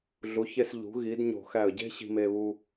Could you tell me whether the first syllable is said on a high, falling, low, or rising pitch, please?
rising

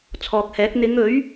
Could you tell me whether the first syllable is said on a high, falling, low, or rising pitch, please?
low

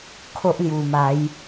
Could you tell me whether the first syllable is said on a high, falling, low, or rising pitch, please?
high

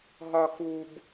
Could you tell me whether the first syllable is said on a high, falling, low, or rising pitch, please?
high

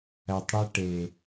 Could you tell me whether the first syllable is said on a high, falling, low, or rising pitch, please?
low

